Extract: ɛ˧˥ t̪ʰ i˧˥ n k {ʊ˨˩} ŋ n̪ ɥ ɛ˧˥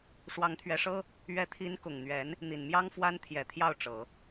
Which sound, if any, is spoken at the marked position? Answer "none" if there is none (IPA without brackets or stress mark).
ʊ˨˩